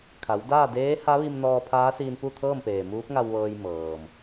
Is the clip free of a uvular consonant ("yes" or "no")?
yes